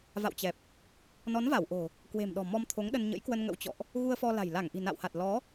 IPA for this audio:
v a̰˧˨ w t͡ɕ ɛ˨˩ p̚ | n ɔ˨˦ n v a˧˩ w ʔ o̤˨˩ | k w e̤˨˩ m ɗ ɔ̤˨˩ m ɔ˧ m t̪ʰ o˨˦ ŋ ɗ ə˧ n ɲ ə̰˧˥ j k w ə˧ n ŋ ə̰˧˥ w t͡ɕ ɔ̰˧˨ ʔ | ɣ u˧ ə̯ f ɔ˧ l a̤˨˩ j l a˧˩ ŋ ʔ i̤˨˩ n a̰˧˨ w h a˨˩ t̚ l ɔ˨˦

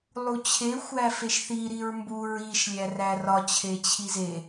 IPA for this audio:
lˠ u t͡ɕʰ e xʷ æ f e ʃ θ i ɾ i ɹ m b u ɹ i ʃ lʲ æ r æ r ɒ t͡ɕʰ e t͡ɕʰ i z e

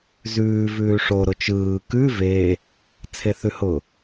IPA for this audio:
z ʉː v ʉː ʂ o ɾ ʊ t͡ʃ ɯː k ʉ v e | t͡sʰ e θ ʉ h ʊ

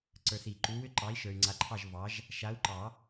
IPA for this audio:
ǀ ə˞˨ θ i˨˩˦ ǃ u˨˦ w ʏ˦ ǃ ɑ˨˦ i̯ ʃ ə˞˨ y̯ ŋ͡ǀ a˨˦ ǃʰ ɑ˦˨ ʒ v ɑ˨˦ ʒ | ʃ a˨˦ u̯ ǃ ɑ˨˩˦

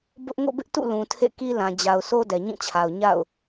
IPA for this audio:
b ʊ˦ ʔ ŋ o̰˦˨ b ɪ˦ ʔ t ṵ˦˨ l ũ˨ tʰ ḛ˦˨ k i˦ l ã˨ d͡ʑ a˨ ʊ̯ s o˦ d ɛ˨ ɲ ĩ˦˨ t͡ɕʰ a˨ ʊ̯ ɲ a̰˦˨ ʊ̯

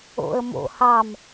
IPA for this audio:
o̰ ə̯ m o̰ h ɑ m

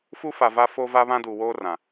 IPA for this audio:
f u˦ f a˨ v a˦ f o˦ v a˦ β ã˦ d uː˨ w oː˦ r ã˨

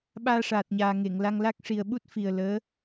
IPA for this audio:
ɓ aː˧ ʂ aː˨˩ t̚ ɲ aː˨˩ ŋ e˨˩˨ ŋ l a˧ ŋ l a˦˥ k̚ ʂ i˨˩ ə̯ ɓ u˦˥ t̚ f i˨˩ ə̯ l əː˧˥

